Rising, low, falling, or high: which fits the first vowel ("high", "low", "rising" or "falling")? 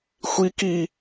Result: high